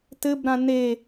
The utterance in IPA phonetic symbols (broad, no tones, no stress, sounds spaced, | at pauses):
t ɘ b ɾ ã n e